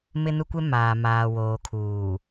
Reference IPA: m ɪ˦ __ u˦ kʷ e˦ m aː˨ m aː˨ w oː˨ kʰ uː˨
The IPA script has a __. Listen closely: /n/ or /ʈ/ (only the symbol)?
n